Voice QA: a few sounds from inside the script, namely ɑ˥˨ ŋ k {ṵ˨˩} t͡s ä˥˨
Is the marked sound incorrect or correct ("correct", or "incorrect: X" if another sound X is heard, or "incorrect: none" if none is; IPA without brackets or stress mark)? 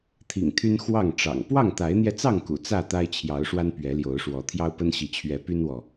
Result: correct